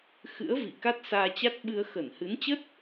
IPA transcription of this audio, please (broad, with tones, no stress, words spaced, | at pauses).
xɨ̰˧˥ə̯vḭ˧˨ ka˦˥t̚saː˧t͡ɕa˦˥t̚ɓɨ˧ə̯ xə˧˩nhɨ˨˦nt͡ɕə˦˥t̚